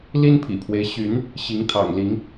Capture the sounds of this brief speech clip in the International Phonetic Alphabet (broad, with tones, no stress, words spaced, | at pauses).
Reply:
li˦npʰḭ˨˩pʰwe˦ɪ̯ ɕy˨˦n | ɕi˨˦ŋt̪ʰɑ̰˨˩ŋli˨˦ŋ